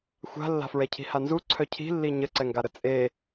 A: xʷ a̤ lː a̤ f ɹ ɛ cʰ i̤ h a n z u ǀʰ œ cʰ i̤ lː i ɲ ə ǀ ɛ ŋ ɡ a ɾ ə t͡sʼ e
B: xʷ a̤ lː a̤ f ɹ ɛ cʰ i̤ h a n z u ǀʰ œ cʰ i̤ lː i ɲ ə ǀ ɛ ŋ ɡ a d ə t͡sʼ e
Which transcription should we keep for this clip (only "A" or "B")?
A